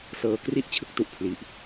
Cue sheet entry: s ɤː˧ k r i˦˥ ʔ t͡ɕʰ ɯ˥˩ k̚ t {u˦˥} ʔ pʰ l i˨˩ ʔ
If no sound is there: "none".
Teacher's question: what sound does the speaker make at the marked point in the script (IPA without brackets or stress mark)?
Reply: u˦˥